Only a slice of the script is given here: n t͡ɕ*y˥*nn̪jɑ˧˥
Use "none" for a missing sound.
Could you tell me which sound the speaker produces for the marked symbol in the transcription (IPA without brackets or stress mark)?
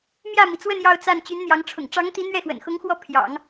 y˧˥